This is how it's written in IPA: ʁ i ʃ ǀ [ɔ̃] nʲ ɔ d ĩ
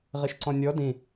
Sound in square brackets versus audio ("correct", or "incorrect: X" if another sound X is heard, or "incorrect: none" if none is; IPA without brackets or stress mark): correct